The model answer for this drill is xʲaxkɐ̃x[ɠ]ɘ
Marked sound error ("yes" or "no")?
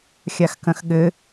no